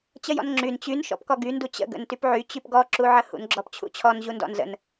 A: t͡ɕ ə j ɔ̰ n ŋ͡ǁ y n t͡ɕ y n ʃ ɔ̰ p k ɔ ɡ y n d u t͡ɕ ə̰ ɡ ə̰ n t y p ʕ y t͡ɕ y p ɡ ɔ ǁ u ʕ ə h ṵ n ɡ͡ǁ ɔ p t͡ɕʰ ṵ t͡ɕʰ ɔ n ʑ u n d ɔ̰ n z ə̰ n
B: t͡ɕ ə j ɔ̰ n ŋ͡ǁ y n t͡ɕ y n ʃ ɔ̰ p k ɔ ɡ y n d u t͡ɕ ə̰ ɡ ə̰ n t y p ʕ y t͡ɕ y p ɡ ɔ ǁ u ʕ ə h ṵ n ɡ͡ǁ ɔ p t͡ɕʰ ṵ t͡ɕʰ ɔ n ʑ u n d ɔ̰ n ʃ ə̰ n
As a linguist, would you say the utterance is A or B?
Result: A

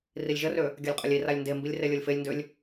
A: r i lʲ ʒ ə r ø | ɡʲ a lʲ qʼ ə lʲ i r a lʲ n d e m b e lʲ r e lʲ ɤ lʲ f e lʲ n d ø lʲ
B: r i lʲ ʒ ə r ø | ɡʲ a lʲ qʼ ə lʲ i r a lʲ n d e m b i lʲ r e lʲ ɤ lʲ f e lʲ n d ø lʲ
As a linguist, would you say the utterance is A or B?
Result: B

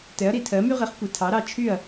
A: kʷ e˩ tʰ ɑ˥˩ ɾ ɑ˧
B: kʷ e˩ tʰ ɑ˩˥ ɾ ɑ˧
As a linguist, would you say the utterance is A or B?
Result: B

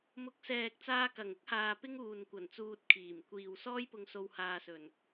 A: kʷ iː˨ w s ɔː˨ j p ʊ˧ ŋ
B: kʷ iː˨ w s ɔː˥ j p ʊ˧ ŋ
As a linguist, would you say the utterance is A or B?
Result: B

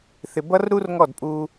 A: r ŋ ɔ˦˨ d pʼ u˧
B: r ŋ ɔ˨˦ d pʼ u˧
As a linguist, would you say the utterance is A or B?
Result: A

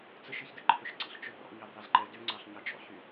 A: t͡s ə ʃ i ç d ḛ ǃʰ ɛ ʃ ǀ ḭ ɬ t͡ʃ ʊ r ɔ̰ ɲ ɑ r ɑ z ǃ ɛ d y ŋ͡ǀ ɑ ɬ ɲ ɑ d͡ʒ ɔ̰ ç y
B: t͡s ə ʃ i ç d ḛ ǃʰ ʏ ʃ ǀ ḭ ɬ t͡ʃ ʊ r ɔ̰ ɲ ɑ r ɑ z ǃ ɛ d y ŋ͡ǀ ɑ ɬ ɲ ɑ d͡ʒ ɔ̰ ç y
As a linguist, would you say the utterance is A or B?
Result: B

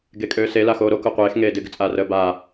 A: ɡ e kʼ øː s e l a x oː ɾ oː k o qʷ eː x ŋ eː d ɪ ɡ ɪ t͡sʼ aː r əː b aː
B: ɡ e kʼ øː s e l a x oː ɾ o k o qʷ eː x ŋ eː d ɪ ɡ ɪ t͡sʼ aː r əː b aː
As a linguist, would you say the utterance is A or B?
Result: B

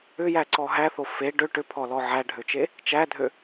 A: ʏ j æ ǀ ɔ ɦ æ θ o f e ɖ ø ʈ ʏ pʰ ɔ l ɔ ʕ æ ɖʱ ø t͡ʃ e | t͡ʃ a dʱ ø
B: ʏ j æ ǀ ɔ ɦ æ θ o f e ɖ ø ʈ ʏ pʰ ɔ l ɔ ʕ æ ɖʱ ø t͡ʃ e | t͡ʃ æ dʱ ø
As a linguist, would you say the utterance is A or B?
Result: B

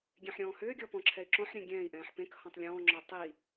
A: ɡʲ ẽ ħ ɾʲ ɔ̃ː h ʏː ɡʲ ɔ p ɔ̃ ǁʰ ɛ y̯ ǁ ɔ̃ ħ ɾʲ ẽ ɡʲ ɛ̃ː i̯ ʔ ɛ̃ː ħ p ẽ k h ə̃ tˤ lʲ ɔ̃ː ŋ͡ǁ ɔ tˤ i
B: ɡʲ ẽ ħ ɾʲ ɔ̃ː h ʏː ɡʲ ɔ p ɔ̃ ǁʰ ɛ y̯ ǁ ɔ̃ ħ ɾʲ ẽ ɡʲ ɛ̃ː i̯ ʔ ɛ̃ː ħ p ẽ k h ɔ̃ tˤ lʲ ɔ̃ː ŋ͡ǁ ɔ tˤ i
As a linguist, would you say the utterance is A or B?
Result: B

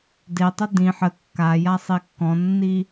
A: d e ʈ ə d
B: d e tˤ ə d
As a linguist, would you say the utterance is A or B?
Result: B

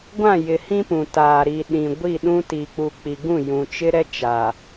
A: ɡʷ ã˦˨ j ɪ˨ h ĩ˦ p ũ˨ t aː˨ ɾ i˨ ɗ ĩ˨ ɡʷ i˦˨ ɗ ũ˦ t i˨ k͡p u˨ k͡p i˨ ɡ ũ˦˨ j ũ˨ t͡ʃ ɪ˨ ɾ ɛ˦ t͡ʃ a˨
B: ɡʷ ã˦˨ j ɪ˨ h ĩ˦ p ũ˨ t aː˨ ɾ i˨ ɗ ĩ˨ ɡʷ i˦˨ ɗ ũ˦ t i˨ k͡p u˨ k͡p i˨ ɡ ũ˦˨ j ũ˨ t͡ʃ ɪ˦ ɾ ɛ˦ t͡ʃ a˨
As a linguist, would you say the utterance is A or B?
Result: B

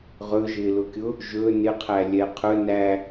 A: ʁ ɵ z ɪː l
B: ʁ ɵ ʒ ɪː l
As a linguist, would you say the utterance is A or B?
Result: B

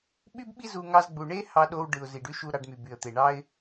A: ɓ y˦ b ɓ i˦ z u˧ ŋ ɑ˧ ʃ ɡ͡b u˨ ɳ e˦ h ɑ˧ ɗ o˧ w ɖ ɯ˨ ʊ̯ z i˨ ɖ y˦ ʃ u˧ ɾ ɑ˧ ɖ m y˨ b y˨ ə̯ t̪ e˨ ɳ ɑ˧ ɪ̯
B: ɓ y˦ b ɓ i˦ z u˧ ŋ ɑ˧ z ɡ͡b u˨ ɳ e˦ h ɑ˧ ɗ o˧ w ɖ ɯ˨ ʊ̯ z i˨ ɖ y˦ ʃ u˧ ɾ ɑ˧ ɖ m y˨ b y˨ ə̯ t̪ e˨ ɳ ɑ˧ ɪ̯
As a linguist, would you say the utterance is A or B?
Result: B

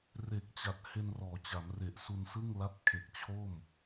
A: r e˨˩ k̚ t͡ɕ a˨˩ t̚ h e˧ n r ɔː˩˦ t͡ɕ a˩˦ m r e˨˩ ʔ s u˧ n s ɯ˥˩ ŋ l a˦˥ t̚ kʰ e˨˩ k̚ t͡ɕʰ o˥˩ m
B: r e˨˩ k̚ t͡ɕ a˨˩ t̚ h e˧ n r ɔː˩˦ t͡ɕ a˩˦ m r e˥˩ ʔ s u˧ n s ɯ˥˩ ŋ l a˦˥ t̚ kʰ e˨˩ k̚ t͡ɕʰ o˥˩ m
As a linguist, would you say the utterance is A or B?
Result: A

